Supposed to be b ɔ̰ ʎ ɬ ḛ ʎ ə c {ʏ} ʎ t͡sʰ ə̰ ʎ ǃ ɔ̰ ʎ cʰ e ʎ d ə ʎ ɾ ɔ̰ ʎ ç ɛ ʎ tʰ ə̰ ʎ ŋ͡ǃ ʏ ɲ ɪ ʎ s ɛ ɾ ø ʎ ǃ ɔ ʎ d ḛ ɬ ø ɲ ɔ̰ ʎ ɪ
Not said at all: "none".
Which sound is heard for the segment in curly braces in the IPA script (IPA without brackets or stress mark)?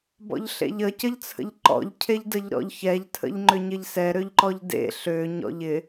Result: ə